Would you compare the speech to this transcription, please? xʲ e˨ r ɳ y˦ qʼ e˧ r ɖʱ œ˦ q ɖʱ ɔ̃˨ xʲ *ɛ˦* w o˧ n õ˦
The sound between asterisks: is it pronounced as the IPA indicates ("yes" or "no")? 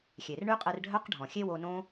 no